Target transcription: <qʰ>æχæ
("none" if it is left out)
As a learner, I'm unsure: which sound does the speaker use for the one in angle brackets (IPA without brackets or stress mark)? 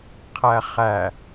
qʰ